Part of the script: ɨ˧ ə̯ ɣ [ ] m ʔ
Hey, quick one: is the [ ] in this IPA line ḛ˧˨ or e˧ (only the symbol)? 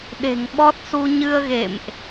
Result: ḛ˧˨